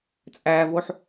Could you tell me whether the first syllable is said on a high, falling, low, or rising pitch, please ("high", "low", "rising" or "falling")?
low